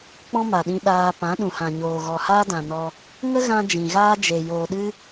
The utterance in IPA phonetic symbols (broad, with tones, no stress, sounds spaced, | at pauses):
k͡p ɔ̃˦ m a˨ ɗ ĩ˧ ɗ aː˧ p ã˨˦ ɗ ũ˨ h ã˨ ɲ oː˨ ɣ ɔ˨ h aː˦ d ã˨ n ɔ˧ | ŋ ə˦ ɣ ã˧ d͡ʒ ĩ˨ ɣ aː˦ d͡ʒ e˨ j oː˨ ɗ ɨ˦